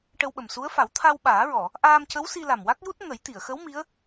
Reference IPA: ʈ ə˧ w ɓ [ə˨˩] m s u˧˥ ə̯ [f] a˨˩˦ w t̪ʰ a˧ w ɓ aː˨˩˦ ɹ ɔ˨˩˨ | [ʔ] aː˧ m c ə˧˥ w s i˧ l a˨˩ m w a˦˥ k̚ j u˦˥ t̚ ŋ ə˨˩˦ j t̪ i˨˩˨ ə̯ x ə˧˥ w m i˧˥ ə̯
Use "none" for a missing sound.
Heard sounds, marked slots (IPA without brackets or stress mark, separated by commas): ə˨˩, f, ʔ